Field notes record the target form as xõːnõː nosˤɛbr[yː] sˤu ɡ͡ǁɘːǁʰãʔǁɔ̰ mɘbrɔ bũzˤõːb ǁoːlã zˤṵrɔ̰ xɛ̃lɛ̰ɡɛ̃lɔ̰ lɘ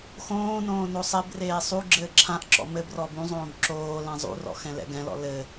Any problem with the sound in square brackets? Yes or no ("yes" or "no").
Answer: yes